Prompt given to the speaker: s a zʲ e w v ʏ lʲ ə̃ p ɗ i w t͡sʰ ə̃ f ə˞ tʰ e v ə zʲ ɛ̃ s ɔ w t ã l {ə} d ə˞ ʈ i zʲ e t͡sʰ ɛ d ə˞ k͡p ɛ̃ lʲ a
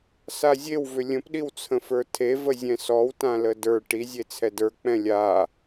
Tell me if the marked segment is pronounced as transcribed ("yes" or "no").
yes